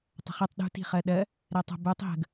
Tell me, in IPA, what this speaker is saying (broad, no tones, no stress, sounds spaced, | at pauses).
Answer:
tˤ ə̤ χ i tˤ ɗ ṳ t i̤ χ ɜ ɗ ɜ | ɾ ɛ tˤ ə̤ b u tˤ ɦ ə̤ ɡ